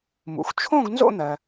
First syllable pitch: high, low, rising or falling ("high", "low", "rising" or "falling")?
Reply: low